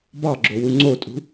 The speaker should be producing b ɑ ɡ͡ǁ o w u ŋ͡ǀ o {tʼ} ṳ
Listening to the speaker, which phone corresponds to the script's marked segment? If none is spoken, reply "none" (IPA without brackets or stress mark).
tʼ